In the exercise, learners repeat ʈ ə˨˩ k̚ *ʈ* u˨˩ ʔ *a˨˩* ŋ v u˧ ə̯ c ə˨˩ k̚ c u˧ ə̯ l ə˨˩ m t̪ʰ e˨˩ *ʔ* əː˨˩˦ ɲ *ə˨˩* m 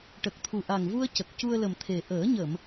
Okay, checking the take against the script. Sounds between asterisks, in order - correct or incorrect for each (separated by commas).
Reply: incorrect, correct, correct, incorrect